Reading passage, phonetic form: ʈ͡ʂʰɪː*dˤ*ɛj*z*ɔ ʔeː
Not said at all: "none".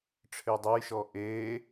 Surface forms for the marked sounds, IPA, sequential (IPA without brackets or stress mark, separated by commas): dˤ, ʃ